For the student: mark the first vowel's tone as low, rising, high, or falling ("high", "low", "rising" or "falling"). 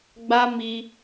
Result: high